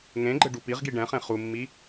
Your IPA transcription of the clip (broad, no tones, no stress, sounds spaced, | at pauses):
ŋ ẽ ɡ͡ǃ ɘ ɖ u p i ʁ ɡ i ɖ ɛ̃ χ ẽ χ u mː i